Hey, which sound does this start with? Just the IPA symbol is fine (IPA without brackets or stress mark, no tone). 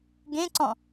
ɡ